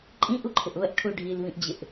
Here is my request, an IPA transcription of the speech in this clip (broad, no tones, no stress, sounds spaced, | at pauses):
ǃʼ ĩ ʔ u ǃʰ ɪ ʔ β ə ʔ ʈʰ u ɖʱ i l β ĩ ʔ d͡ʑ ɪ ʔ